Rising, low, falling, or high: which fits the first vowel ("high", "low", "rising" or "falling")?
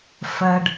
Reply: low